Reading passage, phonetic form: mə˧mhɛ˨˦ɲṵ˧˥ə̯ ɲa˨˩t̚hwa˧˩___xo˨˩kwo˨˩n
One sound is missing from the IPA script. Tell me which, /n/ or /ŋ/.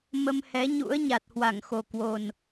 ŋ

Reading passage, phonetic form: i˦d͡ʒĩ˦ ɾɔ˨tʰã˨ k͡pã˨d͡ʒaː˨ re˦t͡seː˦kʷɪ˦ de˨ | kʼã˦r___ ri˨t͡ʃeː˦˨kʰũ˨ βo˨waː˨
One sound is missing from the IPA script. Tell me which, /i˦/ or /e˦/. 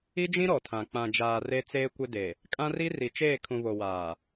i˦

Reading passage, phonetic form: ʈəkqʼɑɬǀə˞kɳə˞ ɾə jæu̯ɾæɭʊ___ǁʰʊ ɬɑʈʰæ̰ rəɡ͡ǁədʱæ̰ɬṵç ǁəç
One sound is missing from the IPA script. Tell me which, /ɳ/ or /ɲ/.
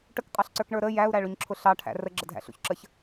ɲ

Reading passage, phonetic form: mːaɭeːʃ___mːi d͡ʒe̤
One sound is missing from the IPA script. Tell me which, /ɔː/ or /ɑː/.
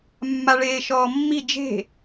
ɔː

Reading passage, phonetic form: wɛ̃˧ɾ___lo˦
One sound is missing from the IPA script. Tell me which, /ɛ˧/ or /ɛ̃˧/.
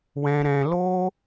ɛ̃˧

